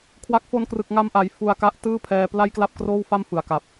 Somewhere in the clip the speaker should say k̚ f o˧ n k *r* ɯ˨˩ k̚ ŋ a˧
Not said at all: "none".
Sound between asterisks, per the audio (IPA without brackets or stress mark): r